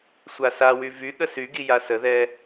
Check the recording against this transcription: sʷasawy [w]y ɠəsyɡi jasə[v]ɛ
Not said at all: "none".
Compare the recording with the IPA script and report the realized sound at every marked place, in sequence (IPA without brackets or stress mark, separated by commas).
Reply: v, ð